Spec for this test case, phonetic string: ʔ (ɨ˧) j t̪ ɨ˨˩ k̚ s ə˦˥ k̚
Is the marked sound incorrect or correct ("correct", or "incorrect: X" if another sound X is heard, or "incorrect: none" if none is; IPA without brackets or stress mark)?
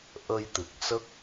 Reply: incorrect: ə˧